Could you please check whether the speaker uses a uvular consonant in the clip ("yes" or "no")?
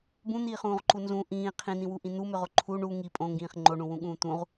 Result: yes